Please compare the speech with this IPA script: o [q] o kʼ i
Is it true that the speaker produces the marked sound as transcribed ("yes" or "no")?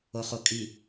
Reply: no